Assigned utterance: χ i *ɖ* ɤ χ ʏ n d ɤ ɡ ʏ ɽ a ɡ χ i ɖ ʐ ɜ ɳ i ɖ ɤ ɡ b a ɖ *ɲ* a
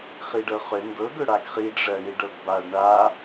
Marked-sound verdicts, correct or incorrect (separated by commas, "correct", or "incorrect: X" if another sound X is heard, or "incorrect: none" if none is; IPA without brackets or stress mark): correct, incorrect: ɳ